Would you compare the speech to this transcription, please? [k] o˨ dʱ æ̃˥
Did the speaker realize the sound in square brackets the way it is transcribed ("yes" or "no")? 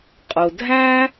no